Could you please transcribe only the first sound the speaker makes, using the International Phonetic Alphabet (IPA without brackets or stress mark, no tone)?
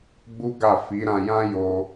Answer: ɡ͡b